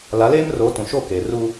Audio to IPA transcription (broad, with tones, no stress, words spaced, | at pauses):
la˨˦leː˦m ro˨˦ tũ˨ ʃo˦˨ keː˨ru˦